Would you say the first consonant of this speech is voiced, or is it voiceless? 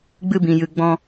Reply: voiced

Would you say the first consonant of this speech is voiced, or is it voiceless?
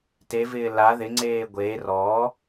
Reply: voiceless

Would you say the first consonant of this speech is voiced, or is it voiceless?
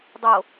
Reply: voiced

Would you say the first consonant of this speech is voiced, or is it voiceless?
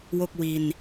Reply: voiced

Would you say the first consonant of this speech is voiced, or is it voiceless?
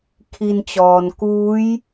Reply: voiceless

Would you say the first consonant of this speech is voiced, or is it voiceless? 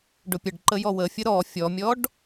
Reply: voiced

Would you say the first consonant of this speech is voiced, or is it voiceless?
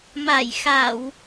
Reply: voiced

